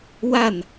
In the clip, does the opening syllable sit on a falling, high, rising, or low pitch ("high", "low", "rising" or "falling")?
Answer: falling